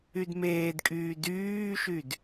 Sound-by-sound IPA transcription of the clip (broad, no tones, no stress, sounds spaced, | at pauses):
y d m eː d kʼ yː d yː ʃ y d